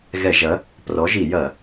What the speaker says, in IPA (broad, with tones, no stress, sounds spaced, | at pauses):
ɣ ɛ˧˩˧ ʒ ɐ˨˥ | p r ɔ˨˥ ʒ i˧˩˧ j ɐ˧˩˧